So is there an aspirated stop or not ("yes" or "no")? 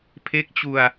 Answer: yes